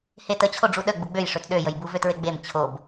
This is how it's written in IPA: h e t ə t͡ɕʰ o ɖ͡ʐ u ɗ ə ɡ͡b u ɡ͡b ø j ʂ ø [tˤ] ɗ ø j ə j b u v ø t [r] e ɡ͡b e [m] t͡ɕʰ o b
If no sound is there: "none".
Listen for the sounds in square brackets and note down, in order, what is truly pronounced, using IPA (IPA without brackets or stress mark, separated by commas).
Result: t, ɹ, m